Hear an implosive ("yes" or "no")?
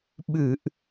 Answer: yes